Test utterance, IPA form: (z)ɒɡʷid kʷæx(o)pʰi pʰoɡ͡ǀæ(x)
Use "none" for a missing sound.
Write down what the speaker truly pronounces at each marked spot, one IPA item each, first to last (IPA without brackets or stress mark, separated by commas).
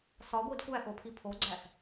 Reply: s, o, x